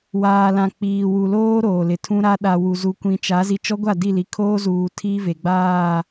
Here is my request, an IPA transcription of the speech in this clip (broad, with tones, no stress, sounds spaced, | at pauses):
w aː˨ l ã˨ k͡p iː˨ w u˨ l oː˦ ɾ oː˨ l ɪ˨ tʰ ũ˦ ɾ a˦ ɗ a˨ w u˨ z u˨ kʷ ĩ˨ t͡ʃ a˨˦ z i˨ t͡ʃ ɔ˦ ɡʷ a˦˨ d i˦˨ l i˨ kʰ oː˦ z uː˨ tʰ iː˦ v e˨ ɡ͡b aː˦˨